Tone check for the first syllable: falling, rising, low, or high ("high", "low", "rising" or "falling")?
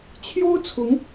high